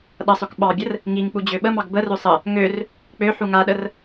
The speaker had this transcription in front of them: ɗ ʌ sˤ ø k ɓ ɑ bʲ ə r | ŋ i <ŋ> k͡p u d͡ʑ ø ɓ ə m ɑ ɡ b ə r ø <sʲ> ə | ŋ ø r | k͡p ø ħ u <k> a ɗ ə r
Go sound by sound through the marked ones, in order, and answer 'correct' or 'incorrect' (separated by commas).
correct, incorrect, incorrect